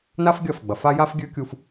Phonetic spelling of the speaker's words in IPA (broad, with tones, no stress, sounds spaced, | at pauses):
n a˦ f ɡʲ ɐ˦˨ f ɡ͡b ɐ˨ f a˦ j a˦ f ɡʲ ʉ˦ kʲ u˦ f